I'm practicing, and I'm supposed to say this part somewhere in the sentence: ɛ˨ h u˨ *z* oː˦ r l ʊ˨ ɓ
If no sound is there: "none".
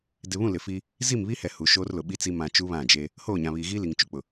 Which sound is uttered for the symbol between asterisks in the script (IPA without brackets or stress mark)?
ʃ